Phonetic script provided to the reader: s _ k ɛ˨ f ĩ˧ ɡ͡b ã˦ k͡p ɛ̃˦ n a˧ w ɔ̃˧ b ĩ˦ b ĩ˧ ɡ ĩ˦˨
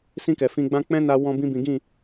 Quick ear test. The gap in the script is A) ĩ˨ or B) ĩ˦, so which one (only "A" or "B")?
B